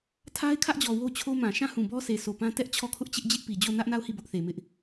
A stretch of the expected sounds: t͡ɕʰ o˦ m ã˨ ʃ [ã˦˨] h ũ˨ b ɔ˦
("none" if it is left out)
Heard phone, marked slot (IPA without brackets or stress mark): ã˦˨